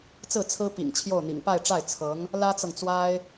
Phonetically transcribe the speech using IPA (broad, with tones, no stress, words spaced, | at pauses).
t͡sɹ̩˥˩t͡sʰɹ̩˥ pḭ˨˩ŋ t͡ɕʰjo˥˩ʊ̯n̪ḭ˨˩ŋ pa˥˧ɪ̯ʈ͡ʂa˥˩ɪ̯ t͡sʰɤ˧˥ŋ | lä˥t͡sɤ˨ŋt͡swa˥ɪ̯